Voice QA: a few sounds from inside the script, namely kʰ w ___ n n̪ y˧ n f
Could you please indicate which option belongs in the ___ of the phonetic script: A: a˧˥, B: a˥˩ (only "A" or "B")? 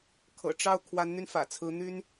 A